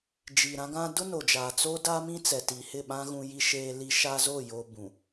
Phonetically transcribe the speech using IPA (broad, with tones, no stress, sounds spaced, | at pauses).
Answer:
d͡ʒ i˨ ɾ ã˦ ɡ ã˦ d ʊ˦ n o˨ d͡ʒ aː˨ t͡s o˦ d a˦ m ĩ˦ t͡s ɛ˨ t i˨ h ɪ˦˨ ɓ ã˦ ɣ ũ˦ j i˦ ʃ eː˦ l i˦ ʃ a˦ z o˦˨ j o˦ b ũ˨